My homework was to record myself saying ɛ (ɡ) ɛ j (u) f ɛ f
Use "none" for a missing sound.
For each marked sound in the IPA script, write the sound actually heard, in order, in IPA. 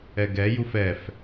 ɡ, u

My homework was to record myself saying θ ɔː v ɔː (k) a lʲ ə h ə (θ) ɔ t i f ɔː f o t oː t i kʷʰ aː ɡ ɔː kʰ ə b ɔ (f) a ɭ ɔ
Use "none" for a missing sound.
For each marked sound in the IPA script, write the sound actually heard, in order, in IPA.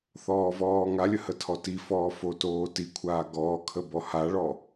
ŋ, tʰ, h

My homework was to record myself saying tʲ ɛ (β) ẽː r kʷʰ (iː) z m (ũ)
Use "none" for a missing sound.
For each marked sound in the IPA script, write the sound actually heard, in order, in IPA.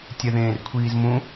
ð, iː, ũ

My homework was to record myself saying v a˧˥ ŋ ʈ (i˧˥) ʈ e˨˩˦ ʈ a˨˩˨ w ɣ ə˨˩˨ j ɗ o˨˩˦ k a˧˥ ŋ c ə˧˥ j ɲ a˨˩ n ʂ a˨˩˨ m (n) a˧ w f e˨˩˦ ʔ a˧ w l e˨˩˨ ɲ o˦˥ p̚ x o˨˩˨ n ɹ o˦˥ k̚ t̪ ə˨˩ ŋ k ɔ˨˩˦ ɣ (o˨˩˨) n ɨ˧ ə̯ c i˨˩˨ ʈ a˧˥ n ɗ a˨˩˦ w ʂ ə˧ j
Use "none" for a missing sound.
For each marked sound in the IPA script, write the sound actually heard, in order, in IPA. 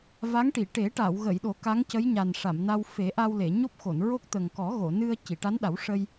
i˨˩˨, n, o˨˩˨

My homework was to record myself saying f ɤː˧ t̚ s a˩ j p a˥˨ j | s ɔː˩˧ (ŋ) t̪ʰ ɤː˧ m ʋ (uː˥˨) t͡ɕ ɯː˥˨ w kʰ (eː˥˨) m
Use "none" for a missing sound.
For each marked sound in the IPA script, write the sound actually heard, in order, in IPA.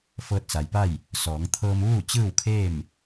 ŋ, uː˥˨, eː˥˨

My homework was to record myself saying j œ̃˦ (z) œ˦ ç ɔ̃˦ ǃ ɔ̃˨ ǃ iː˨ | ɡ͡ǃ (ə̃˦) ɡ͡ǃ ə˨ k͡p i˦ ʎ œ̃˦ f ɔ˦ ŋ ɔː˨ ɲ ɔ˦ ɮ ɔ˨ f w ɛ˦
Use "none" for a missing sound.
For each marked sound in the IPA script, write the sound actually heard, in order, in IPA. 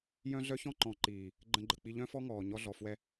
ɮ, ə̃˦

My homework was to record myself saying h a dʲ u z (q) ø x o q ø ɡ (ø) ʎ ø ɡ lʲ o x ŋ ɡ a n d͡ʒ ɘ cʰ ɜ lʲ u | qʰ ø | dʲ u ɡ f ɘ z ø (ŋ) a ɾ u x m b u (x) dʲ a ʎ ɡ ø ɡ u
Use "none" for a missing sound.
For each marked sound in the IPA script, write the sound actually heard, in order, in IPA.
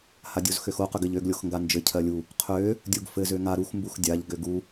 x, ɘ, ŋ, x

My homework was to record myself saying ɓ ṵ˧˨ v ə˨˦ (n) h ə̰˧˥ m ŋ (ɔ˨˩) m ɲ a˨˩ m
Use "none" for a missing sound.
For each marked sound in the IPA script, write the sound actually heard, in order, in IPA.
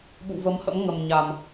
m, ə˨˩

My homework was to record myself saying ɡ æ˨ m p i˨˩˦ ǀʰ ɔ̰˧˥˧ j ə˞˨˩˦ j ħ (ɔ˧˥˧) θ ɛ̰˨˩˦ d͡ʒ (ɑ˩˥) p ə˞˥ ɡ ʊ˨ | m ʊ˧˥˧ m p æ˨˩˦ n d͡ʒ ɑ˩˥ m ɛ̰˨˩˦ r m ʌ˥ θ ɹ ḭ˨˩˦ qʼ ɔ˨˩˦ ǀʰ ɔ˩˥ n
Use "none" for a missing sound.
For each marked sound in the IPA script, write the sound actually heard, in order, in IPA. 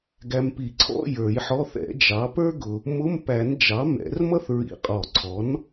ɔ˧˥˧, ɑ˩˥

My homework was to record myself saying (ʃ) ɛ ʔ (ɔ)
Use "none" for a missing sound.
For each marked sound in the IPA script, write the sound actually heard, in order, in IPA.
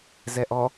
z, ɔ

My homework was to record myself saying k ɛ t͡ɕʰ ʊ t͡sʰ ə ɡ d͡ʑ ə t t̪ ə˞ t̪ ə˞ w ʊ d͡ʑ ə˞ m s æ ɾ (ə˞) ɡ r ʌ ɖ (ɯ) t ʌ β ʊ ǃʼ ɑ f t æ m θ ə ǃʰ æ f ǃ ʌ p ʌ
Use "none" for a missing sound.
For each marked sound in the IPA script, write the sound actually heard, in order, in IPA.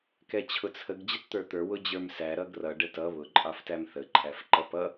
ʌ, ə

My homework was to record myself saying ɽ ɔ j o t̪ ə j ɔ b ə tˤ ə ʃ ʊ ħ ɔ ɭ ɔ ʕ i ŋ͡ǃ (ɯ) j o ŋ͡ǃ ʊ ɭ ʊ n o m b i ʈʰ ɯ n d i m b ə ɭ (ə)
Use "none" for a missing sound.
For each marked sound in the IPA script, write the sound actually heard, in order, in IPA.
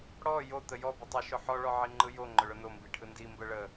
ɯ, ə

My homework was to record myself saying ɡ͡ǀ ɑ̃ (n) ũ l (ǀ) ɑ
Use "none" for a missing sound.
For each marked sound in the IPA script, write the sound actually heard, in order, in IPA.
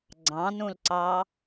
n, ǀ

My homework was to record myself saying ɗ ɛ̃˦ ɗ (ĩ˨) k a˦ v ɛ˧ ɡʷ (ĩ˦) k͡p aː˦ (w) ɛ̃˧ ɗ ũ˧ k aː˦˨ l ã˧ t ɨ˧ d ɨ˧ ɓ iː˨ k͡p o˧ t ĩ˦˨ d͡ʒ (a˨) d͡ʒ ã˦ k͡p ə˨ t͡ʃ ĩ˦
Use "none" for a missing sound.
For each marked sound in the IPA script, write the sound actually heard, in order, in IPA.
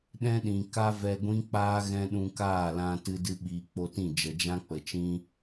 ĩ˨, ĩ˦, ɣ, ə˨

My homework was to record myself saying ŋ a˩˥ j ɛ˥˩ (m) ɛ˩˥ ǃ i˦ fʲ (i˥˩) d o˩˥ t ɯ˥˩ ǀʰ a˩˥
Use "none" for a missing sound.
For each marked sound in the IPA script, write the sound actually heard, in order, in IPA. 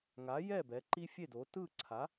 b, e˥˩

